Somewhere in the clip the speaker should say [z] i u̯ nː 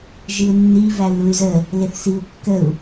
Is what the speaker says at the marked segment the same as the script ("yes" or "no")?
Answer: no